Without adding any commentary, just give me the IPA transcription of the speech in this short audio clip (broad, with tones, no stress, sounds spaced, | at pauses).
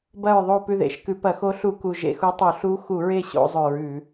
b ɐ˦˨ ɹ ðˤ o˦˨ p ʉ˦˨ ð ḛ˧˩˧ ʃ k ʉ˧˩˧ p ɐ˧˩˧ x o˧˥ ɬ u˧˩˧ k u˨˩ ʒ ḛ˦˨ x u˧˥ tˤ u˧˩˧ ɬ u˧˥ x u˧˩˧ ɹ e˦˨ ɕ o̰˧˥ zˤ ɵ˧˩˧ ɹ ʉ˧˩˧